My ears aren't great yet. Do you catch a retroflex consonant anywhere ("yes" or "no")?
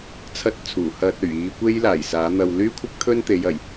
no